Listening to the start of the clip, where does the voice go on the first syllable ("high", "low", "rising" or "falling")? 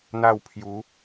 falling